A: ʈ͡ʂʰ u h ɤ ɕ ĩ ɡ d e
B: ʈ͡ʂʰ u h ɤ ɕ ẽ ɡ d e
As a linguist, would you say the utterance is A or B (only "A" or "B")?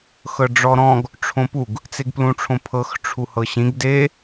A